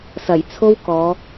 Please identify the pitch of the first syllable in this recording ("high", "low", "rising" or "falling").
low